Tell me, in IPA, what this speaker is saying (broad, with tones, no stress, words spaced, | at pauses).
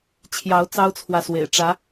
t͡ɕʰjɑ˨˦ʊ̯ t͡sɑ˦ʊ̯t͡sʰwä˨swḛ˨˩ɪ̯ ʈ͡ʂä˨˦